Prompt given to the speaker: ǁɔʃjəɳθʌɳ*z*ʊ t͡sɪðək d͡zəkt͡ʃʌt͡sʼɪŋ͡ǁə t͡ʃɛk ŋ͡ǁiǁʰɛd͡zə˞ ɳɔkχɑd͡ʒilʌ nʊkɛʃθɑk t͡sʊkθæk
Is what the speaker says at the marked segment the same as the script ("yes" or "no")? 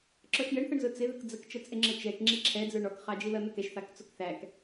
yes